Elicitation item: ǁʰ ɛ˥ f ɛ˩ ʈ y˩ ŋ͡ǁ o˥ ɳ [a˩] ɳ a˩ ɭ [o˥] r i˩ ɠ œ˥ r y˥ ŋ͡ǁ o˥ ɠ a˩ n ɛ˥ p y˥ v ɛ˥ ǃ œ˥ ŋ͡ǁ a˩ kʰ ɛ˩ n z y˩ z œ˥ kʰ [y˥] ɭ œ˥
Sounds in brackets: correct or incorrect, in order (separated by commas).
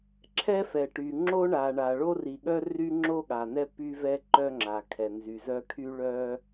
correct, correct, correct